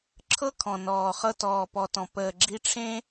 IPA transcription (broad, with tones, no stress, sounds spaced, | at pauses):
ǁʰ ɤ˦ kʰ ɔ̃˨ n ɔː˨ χ ɤ˦ t ɔː˨ p ɔ˨ t ɔ̃˨ p əː˨ ɡ͡ǁ i˦ ʈ͡ʂʰ ẽ˦